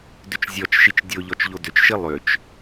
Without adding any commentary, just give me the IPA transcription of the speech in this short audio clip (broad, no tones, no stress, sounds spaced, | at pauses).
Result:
d ʏ t͡ʃ zʲ ɔ t͡ʃ ʃ i t͡ʃ dʲ o ʎ ɔ t͡ʃ ʎ o d ʏ t͡ʃ ʃ i lˠ ʏ t͡ʃ